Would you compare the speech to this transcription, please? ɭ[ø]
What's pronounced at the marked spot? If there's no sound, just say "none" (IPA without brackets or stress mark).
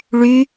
y